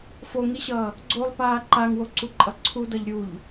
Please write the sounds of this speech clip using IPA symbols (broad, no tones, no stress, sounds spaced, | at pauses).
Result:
f o ŋ i ɕ ʌː | ɡ͡ǀ o lˠ p aː ǃ a ŋ w o ǀ u ǃʼ ʌ ǀʰ u d ʌ ʎ ɾʲ u ʎ